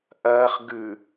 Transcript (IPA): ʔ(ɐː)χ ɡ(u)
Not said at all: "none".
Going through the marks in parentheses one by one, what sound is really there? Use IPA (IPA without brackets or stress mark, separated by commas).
ɐː, ʉ